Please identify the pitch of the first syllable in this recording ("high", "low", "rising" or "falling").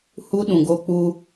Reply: high